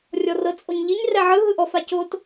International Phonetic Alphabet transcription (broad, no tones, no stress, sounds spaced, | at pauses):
rʲ ɔ r ɤ t͡sʼ o ɲ ʎ i ɲ r ɛ ʕ ɯ ɦ ɯ ʔ ɔ f a c o t